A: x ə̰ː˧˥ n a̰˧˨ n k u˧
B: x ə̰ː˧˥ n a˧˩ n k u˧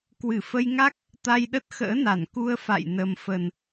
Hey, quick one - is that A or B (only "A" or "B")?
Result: B